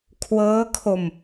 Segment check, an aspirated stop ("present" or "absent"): present